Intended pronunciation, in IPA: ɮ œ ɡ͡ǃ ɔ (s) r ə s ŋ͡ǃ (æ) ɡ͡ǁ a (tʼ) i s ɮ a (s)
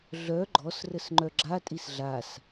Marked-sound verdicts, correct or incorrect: correct, incorrect, correct, correct

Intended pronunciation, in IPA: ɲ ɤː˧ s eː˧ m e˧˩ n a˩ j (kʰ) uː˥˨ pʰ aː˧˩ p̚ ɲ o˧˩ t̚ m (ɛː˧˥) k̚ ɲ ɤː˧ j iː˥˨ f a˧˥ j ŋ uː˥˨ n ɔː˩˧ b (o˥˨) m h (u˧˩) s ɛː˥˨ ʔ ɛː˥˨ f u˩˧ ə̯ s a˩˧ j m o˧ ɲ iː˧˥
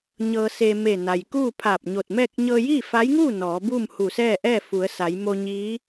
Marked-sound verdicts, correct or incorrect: incorrect, incorrect, incorrect, correct

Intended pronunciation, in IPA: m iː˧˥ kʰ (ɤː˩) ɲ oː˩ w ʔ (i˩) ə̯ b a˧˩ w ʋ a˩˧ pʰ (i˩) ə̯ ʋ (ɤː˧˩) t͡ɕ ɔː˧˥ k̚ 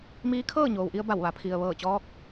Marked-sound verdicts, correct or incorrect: incorrect, incorrect, correct, correct

